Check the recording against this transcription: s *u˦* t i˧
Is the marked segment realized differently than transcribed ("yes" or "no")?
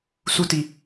no